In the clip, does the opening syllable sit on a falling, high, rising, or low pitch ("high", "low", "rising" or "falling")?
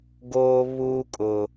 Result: high